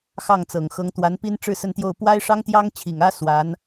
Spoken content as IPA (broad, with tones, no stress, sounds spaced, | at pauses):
x ɑ˥˩ ŋ t͡s ɤ˨˩ ŋ x ɤ˧˥ ŋ t̪ w a˧˥ n p i˥ n ʈ͡ʂ ɻ̩˥˧ s ə˥˧ n t̪ j o˥˩ ʊ̯ p w a˥ ɪ̯ ʂ ɑ˥ ŋ t̪ j ɑ˥ ŋ t͡ɕʰ i˨˩ ŋ ä˥ s w a˧˥ n